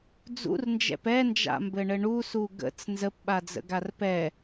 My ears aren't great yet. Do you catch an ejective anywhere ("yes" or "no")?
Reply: no